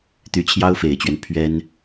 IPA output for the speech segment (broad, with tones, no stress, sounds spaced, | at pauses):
t̪ y˧˥ t͡ɕʰ j ɑ˥ ʊ̯ f e˨˩ ɪ̯ t͡ɕ ɥ ɛ˦ n pʰ ɥ ɛ˥ n